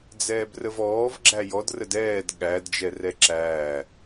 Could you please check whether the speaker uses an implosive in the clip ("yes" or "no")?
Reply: yes